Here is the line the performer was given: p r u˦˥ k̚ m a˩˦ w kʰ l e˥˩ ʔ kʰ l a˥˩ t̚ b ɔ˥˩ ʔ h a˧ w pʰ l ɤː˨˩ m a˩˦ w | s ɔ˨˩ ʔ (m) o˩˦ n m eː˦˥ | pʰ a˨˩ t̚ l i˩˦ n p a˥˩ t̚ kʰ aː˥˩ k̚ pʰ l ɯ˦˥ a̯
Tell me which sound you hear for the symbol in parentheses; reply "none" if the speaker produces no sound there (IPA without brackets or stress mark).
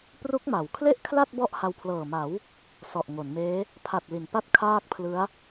ŋ